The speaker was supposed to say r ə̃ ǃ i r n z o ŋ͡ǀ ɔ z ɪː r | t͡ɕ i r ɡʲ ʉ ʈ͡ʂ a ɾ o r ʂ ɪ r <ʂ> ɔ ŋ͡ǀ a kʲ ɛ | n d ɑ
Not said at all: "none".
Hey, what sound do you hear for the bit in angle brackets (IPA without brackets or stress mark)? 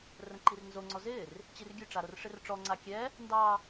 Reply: ʈ͡ʂ